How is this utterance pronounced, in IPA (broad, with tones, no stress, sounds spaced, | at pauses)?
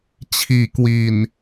t͡ɕʰ iː˨˩ k w i˨˩ n